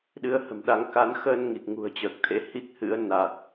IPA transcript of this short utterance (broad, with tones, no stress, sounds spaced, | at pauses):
ɗ ɨ˧ ə̯ h ə̤˨˩ m ɗ a˧ ŋ k a˨˦ n x əː˧ n ŋ i˨˩ k̚ ŋ ṳ˨˩ ə̯ t͡ɕ əː˨˩ k̚ t̪ʰ ḛ˧˥ h i˦˥ k̚ h ɨ̰˧˥ ə̯ n a˨˩ t̚